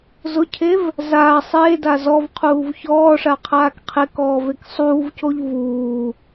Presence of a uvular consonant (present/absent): present